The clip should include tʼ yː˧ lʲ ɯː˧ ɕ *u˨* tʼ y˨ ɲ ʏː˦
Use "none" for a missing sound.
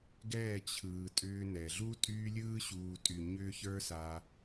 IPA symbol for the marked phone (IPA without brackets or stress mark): uː˨